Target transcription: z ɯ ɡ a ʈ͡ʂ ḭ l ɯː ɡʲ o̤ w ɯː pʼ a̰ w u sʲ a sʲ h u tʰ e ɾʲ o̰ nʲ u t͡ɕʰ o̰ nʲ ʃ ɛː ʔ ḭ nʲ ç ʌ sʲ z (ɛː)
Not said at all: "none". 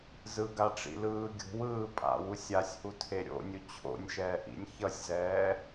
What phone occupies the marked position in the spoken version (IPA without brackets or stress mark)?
ɛː